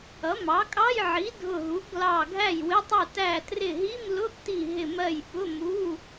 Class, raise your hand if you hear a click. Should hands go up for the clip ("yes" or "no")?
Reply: no